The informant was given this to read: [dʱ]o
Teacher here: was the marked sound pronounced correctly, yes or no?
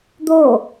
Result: no